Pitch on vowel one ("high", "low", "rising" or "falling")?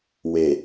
low